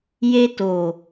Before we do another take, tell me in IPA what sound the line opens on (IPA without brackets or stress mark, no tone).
j